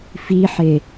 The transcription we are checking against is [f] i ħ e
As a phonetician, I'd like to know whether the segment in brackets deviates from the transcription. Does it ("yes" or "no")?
no